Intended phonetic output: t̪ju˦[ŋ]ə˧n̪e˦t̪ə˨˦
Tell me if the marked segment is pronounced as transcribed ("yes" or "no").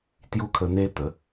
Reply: no